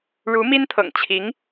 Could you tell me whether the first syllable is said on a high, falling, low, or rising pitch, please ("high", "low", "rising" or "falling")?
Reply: rising